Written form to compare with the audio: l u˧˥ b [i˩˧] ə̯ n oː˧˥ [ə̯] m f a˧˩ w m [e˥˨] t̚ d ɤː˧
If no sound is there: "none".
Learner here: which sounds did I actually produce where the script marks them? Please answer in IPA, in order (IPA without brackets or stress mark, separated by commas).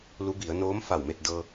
i˩˧, none, e˥˨